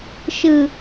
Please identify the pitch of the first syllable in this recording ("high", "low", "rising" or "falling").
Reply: low